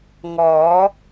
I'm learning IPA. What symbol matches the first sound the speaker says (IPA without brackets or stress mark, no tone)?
ŋ